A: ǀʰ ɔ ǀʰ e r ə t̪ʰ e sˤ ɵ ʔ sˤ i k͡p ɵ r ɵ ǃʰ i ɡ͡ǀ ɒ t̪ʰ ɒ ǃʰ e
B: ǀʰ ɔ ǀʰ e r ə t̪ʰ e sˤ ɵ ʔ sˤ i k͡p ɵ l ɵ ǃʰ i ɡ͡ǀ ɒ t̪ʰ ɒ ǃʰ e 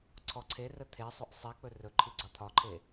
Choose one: A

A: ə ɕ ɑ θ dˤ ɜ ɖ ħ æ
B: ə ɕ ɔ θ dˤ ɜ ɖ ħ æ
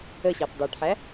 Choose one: A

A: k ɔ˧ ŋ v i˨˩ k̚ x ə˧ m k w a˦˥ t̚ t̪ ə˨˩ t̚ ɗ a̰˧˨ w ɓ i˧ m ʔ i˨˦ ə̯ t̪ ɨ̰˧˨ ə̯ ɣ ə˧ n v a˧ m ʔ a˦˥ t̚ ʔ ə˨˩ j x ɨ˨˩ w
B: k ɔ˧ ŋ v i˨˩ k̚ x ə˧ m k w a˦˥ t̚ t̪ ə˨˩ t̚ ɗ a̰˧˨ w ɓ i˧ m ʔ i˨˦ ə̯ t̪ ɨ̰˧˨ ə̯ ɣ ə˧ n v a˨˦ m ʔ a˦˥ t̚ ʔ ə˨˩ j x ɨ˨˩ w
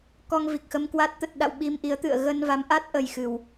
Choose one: B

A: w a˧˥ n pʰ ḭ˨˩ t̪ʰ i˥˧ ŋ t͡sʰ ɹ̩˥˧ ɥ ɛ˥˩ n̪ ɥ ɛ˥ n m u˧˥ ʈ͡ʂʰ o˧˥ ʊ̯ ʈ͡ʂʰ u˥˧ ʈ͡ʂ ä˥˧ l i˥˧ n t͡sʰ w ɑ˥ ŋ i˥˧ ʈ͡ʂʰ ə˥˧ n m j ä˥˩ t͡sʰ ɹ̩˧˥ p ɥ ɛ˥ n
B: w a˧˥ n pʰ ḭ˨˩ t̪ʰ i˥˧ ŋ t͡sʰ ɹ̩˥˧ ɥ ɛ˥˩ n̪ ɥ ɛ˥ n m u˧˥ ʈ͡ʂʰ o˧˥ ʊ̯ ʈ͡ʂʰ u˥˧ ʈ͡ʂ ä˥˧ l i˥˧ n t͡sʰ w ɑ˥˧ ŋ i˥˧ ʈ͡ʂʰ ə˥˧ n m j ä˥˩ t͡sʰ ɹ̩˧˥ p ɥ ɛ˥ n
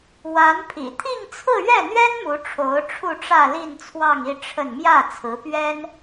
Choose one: B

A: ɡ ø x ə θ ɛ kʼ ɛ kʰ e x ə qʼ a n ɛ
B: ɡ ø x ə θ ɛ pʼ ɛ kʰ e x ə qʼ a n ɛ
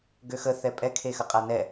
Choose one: B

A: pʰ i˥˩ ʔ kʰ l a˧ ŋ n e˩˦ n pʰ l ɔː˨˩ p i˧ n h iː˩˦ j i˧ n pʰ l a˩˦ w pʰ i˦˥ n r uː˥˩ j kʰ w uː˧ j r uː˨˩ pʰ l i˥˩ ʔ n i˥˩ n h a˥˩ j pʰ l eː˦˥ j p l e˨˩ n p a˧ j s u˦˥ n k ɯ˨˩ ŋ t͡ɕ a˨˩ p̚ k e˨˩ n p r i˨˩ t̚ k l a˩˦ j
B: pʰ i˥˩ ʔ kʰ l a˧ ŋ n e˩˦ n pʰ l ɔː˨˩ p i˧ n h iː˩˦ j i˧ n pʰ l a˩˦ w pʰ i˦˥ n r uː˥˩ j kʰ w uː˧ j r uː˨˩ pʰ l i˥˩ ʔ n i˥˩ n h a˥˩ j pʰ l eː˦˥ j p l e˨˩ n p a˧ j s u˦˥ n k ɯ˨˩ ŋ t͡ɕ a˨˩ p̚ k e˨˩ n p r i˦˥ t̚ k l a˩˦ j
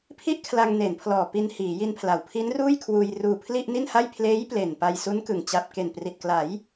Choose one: A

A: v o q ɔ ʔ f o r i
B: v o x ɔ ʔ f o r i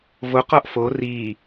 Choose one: A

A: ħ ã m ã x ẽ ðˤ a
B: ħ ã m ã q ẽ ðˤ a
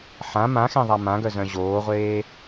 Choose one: A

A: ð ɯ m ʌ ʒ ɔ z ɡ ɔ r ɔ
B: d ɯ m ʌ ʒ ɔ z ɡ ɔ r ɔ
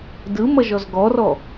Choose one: B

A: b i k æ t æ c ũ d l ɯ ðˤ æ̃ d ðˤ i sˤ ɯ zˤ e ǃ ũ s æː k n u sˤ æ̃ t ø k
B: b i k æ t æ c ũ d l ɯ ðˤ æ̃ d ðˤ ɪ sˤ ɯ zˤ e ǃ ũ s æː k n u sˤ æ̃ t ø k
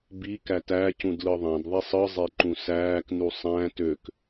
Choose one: A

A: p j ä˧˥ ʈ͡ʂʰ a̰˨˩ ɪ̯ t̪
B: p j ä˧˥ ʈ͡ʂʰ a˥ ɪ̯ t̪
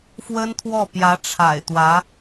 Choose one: A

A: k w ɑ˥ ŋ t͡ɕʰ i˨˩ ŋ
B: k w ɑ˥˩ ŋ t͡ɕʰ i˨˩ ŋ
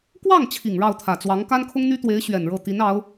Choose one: B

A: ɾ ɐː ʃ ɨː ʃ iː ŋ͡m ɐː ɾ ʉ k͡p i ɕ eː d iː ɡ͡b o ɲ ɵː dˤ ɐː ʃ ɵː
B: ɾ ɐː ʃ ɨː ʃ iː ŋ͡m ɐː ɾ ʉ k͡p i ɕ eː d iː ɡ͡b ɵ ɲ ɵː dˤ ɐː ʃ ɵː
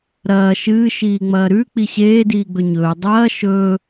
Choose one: B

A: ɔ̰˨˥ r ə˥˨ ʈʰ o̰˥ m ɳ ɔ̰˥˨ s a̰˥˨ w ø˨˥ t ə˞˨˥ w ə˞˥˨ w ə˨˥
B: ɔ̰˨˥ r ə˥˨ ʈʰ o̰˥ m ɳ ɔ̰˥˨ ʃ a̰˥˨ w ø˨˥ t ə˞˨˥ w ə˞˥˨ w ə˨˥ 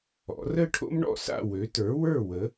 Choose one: A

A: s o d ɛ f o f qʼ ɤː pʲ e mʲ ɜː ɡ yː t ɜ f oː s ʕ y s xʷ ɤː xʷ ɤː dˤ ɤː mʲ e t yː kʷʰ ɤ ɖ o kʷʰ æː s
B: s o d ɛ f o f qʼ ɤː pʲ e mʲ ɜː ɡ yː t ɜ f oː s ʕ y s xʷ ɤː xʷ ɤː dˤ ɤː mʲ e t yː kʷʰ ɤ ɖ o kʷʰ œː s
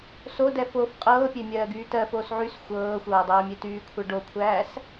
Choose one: A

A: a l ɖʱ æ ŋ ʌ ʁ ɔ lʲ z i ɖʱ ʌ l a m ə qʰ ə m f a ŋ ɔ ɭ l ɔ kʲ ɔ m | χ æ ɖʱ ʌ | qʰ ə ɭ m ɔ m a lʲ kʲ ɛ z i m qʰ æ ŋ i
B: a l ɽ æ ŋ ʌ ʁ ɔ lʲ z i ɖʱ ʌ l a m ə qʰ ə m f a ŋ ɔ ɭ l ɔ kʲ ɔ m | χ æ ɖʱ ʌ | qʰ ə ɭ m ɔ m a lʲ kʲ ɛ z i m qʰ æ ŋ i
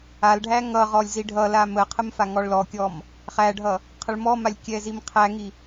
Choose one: A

